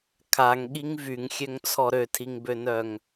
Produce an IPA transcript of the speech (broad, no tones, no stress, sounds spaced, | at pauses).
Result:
kʰ a ŋ ɠ i ŋ v y ŋ xʲ ø ŋ t͡sʰ ɔ ɾ ø tʰ i ŋ b ø n œ ŋ